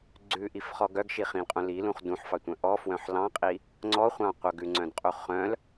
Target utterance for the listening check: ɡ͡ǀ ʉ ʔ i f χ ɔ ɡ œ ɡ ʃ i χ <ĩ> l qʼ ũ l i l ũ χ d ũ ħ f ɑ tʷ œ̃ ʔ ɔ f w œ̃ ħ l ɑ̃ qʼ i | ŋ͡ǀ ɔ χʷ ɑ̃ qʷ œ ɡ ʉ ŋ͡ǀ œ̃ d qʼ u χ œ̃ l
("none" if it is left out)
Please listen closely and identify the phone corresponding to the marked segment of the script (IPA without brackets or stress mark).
ĩ